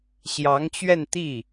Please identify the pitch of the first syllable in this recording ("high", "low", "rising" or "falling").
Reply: rising